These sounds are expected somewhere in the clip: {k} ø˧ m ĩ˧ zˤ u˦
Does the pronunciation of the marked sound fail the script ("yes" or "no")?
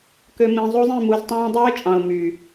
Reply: no